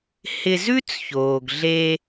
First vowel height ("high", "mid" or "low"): high